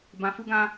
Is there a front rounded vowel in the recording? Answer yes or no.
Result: no